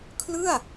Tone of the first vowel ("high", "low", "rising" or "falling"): falling